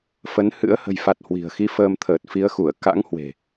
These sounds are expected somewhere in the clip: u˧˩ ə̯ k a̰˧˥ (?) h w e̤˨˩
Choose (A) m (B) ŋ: B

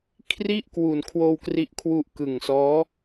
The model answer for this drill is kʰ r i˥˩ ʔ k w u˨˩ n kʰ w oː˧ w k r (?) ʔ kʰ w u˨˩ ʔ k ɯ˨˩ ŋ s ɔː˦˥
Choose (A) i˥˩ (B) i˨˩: B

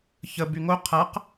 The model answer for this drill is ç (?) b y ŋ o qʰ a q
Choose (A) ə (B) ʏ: A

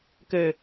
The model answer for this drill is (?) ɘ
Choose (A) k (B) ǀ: A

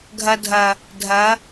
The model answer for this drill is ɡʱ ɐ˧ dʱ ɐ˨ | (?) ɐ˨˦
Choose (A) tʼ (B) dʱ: B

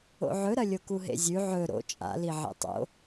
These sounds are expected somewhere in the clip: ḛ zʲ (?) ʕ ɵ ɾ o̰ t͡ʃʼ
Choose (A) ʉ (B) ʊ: A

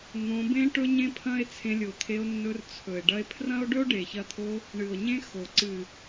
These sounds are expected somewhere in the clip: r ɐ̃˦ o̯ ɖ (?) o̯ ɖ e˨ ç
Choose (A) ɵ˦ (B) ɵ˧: A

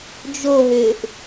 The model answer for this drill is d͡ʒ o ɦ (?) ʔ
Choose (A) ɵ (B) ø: B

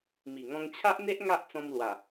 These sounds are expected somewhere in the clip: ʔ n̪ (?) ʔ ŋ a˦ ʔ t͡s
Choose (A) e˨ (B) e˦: B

